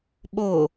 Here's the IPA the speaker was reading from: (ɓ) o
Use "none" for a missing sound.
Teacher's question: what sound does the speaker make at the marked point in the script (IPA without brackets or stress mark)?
ɓ